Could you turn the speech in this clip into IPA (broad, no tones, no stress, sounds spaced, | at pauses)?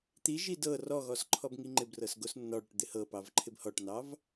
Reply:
t̪ i ʒ i d ɤ r ɔ ɣ ɔ s ǃʰ ɔ b ŋ i ŋ͡ǃ ɪ b r ɤ s ɡ o s nː ɔ ɽ o ʈ d̪ ɪ h ɤ p ɑ v ǃʰ ɪ b h ɔ ʈ n ɑ v